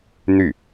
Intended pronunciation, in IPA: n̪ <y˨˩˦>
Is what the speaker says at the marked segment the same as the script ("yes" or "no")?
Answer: no